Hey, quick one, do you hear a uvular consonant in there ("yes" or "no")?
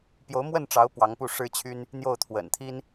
no